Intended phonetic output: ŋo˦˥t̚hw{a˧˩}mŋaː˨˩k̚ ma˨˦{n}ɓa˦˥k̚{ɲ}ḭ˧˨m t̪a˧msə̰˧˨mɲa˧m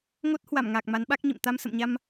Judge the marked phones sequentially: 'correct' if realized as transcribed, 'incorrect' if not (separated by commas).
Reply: correct, correct, correct